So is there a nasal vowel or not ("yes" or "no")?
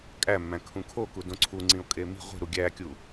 yes